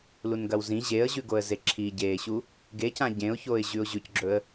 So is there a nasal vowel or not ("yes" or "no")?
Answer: yes